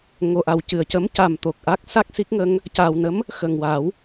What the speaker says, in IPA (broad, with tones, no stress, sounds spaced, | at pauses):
ŋ o˨˩ ʔ a˨˩ w c ɨ˨˩ ə̯ c ə˧˥ m c a˨˩ m t̪ o˨˩ k̚ ʔ a˦˥ k̚ s a˦˥ k̚ s i˦˥ k̚ ŋ ə˧˥ ŋ | c aː˨˩ w n ə˧˥ m | x ə˨˩ ŋ w a˨˩˦ w